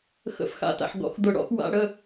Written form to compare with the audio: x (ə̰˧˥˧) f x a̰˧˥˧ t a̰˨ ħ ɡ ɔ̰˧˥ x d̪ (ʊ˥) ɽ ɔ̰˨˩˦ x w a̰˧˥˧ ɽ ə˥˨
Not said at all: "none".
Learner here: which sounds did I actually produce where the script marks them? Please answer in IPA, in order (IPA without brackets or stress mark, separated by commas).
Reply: ə̰˧˥˧, ʊ˨˩˦